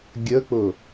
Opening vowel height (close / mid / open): mid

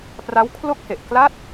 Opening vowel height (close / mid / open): open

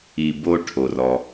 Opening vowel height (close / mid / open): close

